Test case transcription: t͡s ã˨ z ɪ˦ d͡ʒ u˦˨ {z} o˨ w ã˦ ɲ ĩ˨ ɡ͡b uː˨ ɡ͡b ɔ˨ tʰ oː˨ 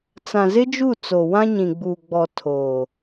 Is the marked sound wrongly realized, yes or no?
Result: yes